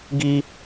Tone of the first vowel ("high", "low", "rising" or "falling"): high